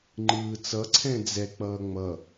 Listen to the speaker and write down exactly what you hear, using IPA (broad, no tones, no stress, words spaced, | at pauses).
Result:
ŋ͡ǃɯːt͡sʌ ǀʰɛ̃d͡zɛ k͡pʌːŋ͡mʌ